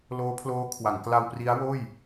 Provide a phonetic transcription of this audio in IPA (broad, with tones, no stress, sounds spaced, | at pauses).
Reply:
l oː˦˥ pʰ l oː˦˥ kʰ w a˩˦ ŋ k l a˧ w p r i˦˥ a̯ w oː˥˩ j